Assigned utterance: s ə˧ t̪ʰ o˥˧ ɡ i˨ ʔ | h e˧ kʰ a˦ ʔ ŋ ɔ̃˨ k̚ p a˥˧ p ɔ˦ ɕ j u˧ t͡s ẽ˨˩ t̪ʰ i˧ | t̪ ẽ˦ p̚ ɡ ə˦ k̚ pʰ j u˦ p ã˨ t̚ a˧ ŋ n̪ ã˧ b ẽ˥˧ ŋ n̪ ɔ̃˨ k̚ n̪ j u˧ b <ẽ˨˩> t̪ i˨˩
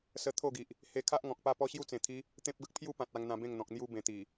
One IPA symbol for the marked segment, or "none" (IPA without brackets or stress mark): ẽ˨˩